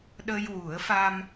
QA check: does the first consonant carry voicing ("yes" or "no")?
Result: yes